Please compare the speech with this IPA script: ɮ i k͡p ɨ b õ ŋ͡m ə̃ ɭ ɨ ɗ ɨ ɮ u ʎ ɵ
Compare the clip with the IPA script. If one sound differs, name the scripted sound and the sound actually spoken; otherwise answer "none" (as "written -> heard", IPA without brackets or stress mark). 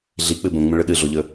u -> o